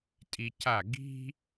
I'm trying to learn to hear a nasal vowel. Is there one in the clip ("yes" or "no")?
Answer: no